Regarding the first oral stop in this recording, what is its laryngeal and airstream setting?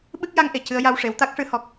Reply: implosive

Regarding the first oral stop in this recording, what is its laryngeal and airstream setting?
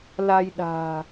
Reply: implosive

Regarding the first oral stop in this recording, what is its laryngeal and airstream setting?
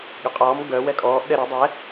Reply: implosive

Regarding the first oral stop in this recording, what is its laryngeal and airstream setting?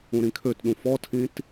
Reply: aspirated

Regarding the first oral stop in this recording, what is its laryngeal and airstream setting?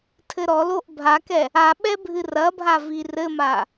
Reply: aspirated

